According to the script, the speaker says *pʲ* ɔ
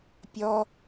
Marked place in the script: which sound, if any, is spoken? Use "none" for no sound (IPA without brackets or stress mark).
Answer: pʲ